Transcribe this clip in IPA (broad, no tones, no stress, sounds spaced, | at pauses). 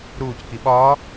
ɾ uː c k i ɓ ɒː